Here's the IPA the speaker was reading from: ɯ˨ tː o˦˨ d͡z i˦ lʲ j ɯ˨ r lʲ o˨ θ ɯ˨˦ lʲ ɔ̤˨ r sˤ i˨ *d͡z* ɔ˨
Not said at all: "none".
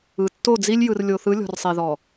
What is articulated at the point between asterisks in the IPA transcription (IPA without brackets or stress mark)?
ð